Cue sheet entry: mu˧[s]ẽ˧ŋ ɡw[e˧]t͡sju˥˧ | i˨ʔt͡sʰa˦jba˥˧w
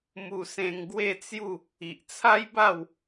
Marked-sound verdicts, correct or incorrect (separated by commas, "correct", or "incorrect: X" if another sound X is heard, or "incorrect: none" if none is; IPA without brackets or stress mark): correct, incorrect: e˥˧